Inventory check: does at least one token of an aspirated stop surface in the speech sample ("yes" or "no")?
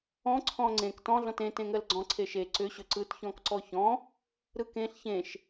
yes